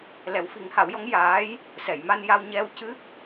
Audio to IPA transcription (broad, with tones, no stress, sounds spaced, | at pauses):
l ɛ˨˩˦ w f i˨˩˦ ŋ h a˨˩˦ w j ɔ˧˥ ŋ j aː˧˥ j | s ɛ˨˩˨ j m a˧ n j a˧ w ɲ ɛ˧ w c ɨ˦˥ k̚